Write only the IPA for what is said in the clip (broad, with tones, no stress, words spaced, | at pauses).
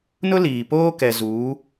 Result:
nʊ˦liː˨poː˦ kɛ˨zuː˨˦